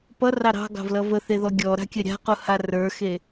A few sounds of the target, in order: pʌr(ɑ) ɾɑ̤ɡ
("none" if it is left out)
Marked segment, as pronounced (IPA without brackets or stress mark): ɑ